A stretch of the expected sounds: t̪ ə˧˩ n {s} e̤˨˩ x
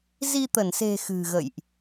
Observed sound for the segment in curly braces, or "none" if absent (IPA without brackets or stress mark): s